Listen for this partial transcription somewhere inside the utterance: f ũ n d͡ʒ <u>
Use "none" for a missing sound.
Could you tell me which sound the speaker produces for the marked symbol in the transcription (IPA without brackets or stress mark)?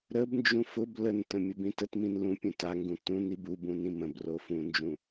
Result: ũ